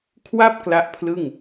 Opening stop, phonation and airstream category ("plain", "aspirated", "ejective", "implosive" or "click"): aspirated